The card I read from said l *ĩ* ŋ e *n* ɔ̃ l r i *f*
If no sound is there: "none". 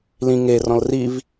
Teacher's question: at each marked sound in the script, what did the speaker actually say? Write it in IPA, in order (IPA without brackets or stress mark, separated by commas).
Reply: ĩ, r, v